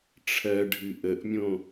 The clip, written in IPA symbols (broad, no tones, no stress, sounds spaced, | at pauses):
ʈ͡ʂʰ ɜ ɖʱ ɨ ʔ ə ʔ mʲ õ